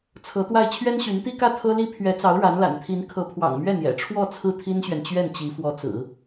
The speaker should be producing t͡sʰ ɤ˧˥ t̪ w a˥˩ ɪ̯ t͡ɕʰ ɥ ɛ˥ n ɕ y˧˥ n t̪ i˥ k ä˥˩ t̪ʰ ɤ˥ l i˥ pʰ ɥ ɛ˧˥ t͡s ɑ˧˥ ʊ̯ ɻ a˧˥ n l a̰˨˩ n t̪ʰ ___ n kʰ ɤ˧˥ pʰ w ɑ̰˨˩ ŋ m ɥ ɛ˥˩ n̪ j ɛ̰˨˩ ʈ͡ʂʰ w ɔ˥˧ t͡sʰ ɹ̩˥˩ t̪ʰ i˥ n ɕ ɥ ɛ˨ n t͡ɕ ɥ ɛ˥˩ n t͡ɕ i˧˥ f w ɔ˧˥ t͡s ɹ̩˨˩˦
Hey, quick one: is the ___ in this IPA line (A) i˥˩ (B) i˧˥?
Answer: B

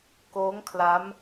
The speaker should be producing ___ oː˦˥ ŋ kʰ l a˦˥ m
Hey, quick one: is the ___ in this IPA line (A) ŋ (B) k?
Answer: B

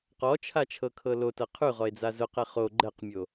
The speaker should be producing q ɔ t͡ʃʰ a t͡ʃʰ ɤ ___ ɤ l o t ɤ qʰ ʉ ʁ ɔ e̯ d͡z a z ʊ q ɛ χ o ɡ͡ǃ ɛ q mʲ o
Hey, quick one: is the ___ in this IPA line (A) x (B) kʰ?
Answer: B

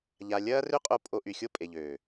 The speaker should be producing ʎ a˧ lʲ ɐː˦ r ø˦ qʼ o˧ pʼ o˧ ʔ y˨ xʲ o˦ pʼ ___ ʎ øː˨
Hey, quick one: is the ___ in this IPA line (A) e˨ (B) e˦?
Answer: A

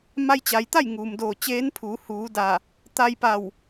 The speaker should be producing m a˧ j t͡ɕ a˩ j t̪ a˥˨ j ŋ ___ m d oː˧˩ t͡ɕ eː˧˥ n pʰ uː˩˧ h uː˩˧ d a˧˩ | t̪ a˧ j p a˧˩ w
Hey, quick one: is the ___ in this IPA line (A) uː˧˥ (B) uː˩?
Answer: B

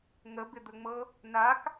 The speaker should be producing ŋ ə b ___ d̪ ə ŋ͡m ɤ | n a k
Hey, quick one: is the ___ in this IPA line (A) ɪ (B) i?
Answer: A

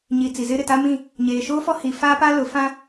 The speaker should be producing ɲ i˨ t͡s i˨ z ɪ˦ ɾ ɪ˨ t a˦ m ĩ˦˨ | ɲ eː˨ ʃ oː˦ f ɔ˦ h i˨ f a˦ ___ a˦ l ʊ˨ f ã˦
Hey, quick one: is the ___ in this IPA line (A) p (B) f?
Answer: A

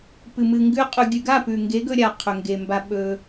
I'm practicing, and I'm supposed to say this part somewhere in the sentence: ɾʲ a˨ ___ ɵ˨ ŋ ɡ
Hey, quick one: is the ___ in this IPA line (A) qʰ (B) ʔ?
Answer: A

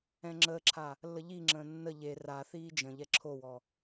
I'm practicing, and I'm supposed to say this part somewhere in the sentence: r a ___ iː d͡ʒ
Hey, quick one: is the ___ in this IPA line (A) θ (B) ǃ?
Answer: A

